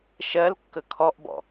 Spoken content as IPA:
ʃɜlkːə kʰɔʔbɔ̰

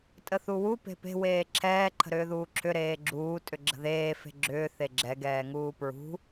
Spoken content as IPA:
tʼəθuwu pe̤pe̤ weːǁʰɛː ǃʰə̤ɾʏːðuːǁʰʏ ɾeːɡ͡ǁuː tʼʏɡ͡ǁə̤ðeː fe̤ɡ͡ǁʏː θeɡ͡ǁɛ ɡɛːŋuːpɹṳ

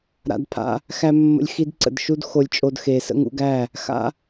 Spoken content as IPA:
ɾa̰˧dpʰa̰˧ | xæ˦mːə̰˦lʲxi˦dǀə̰˧d ʃu˦dxo˧lʲt͡ʃʼo˧d xe˨ sə̰˦ŋṵ˧ɡæ˦˨ | xa̰˦

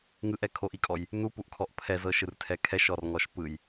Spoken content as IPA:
ŋɯʔɛ kʰoʔikʼɔj | nupuʔkʰɔʔ pʰɛzɤʃɯrtʰɛ kʰɛʃɔrŋɔʃ pɯj

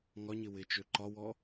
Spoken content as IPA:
ŋɒɲɪ wɪt͡ʃø ǃɒwɔ

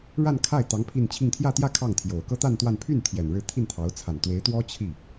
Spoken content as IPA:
ɻa˥˧nkʰa˥˩ɪ̯t̪ɑ˧˥ŋ pʰi˥˧nt͡ɕʰi˥˧ŋ t̪ʰjä˥˧t̪jä˥˧ kʰɑ˥˩ŋt̪ʰjo˨˩ʊ̯ kɤ˥t̪a˥˧nt̪wa˥˧n pʰy˥˩n t̪ʰjɛ˨˩nɻɻ̩˥˧ t̪ʰi˥˩nt̪ʰɑ˧˥ʊ̯ t͡sʰa˨˩n t̪we˧˥ɪ̯t̪wɔ˥ t͡ɕʰi˥˩

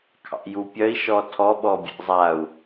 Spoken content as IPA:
kʰɑ̰jupʲœi̯ ʃɔtʰɔɓɔ bʲḛzˤau̯

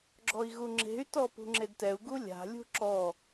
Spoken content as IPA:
ɡ͡ǁɔi̯ɣuŋ͡ǁe̤y̯tɔ pṳŋ͡ǁedtɛu̯ɡu lʲa̤lʲṳ ǁɔ

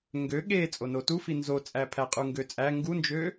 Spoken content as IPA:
ŋɡø ɠe t͡sʼonotufi nzot͡sʼæpʰæ qʼuŋɡøt͡sʼæ ŋɡund͡ʒø

